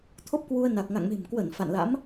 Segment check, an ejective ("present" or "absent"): absent